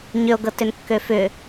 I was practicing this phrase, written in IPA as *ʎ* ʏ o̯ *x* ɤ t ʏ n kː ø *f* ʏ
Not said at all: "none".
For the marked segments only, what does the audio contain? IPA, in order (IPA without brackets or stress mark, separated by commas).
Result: ɲ, ɡ, f